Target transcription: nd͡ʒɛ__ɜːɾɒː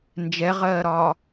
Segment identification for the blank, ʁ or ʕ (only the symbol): ʁ